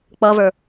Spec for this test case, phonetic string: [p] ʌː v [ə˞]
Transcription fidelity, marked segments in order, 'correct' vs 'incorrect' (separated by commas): incorrect, correct